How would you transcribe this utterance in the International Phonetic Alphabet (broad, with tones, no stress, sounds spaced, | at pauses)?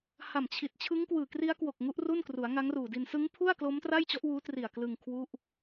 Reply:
h a˨˩ m t͡ɕʰ i˨˩ t̚ t͡ɕʰ ɯ˦˥ ŋ k w ɯː˨˩ k r i˦˥ a̯ k w o˨˩ k̚ ŋ u˦˥ ʔ r u˥˩ n k r u˩˦ a̯ ŋ a˦˥ ŋ r uː˨˩ d i˧ n s ɯ˦˥ ŋ pʰ u˥˩ a̯ k l oː˦˥ m t r a˥˩ j t͡ɕ ɔ˦˥ ʔ w uː˦˥ t r i˨˩ a̯ k l ɯ˧ ŋ kʰ w u˥˩ ʔ